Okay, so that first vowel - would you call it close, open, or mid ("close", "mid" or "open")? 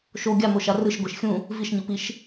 mid